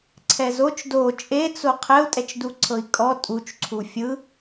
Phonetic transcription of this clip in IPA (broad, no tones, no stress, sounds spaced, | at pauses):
ǀʰ ɛ z o t͡ʃ d o t͡ʃʼ e t͡s o qʰ ɛ u̯ tʼ ɛ t͡ʃ d u ǀʰ ɤ i̯ kʼ ɔ tʼ u t͡ʃ ǀʰ u fʲ ɯ